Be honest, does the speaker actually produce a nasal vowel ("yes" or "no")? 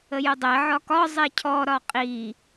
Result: no